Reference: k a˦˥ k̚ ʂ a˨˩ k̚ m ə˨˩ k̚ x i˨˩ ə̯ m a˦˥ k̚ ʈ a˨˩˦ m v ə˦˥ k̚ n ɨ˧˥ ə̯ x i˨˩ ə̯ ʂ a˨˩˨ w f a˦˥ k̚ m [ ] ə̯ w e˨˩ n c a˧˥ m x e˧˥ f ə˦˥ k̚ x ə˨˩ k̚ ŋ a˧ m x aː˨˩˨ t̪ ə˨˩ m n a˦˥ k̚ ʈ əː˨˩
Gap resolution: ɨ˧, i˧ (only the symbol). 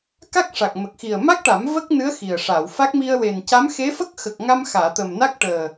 i˧